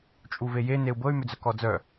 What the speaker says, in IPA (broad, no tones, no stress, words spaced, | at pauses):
t͡ʃʼuveje neu̯bɤy̯ mʏd͡zœkɔd͡zœ